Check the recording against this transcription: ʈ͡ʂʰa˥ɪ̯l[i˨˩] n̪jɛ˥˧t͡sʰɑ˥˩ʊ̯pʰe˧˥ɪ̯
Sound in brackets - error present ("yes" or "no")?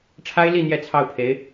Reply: yes